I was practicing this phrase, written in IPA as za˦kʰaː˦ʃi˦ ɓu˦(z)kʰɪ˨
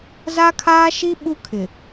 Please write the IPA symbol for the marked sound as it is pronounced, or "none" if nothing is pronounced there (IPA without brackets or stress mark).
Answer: none